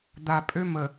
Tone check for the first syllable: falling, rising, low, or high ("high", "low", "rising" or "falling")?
low